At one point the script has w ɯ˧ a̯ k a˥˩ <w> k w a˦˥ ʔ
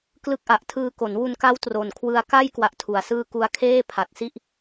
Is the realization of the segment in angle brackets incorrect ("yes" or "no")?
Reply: yes